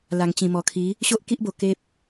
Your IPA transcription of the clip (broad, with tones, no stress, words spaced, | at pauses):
la˨˩ŋt͡ɕĩ˨˩mɔ˨˩ kʰi˨˦ | ɕo˦ʔki˦ʔbo˨˩ ke˦p̚